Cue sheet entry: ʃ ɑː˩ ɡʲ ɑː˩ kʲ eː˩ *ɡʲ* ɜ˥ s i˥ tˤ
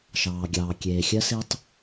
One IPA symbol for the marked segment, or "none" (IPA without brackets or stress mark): xʲ